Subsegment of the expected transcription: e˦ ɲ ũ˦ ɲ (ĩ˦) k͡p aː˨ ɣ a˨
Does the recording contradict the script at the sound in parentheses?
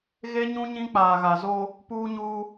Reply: no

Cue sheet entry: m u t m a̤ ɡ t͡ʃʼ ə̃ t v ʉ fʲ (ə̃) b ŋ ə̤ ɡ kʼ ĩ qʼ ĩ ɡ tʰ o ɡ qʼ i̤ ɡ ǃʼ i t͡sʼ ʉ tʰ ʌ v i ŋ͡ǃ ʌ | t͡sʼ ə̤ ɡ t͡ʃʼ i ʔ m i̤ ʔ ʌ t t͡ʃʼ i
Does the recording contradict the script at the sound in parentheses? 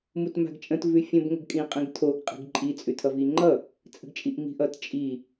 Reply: no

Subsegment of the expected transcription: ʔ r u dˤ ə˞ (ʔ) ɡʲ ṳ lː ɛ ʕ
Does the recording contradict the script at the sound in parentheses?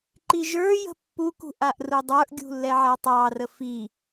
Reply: no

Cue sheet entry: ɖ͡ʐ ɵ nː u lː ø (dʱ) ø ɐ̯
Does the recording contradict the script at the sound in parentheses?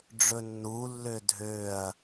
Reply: no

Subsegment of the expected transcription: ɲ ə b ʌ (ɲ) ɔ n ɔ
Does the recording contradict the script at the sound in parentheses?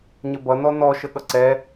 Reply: yes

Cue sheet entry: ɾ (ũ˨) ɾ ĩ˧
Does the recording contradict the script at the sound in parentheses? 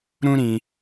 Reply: yes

